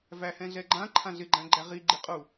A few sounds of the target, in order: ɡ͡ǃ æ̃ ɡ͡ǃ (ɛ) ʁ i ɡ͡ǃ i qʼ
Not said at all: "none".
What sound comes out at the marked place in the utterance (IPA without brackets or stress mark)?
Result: æ